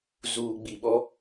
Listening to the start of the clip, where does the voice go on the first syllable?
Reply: low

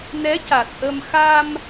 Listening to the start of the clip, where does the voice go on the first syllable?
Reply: rising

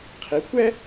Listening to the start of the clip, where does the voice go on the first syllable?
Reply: rising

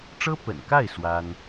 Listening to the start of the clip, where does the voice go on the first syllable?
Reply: high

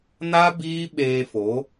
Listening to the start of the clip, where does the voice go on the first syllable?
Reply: high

